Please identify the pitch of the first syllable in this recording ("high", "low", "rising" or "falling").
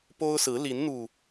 high